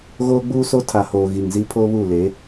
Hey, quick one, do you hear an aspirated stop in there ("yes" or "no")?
yes